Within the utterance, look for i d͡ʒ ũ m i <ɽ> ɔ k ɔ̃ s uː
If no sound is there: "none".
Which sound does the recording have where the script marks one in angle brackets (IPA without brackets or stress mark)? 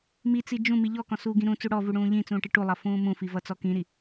ʎ